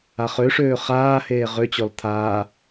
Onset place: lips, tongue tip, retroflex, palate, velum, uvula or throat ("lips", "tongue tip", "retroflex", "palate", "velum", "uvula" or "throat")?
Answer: uvula